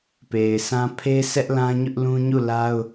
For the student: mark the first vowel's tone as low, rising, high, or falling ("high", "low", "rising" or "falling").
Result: low